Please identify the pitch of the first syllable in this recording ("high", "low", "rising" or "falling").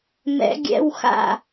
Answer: rising